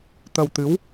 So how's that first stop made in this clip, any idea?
plain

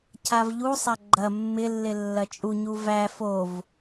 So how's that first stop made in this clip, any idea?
aspirated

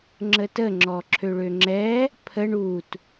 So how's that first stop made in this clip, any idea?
click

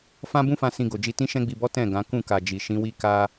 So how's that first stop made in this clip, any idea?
plain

